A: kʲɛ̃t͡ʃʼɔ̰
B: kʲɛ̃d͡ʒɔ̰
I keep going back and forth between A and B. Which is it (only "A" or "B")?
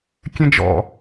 B